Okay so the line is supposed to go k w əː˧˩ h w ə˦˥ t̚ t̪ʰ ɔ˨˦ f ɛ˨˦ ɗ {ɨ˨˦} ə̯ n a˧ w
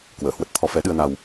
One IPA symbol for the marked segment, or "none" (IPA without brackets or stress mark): ɨ˧